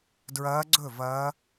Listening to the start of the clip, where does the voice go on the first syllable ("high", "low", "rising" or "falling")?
rising